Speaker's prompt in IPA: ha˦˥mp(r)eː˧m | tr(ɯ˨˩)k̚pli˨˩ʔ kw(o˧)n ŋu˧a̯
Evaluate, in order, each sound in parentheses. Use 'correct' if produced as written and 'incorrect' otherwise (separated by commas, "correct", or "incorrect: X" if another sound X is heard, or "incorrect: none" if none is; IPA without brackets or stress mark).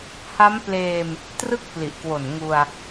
incorrect: l, incorrect: ɯ˥˩, incorrect: o˨˩